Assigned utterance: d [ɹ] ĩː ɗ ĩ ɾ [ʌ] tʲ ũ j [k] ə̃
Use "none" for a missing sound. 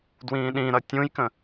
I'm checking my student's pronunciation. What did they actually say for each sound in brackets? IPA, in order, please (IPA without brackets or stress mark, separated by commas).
w, ʌ, k